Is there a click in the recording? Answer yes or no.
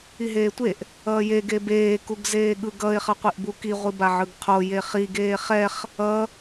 no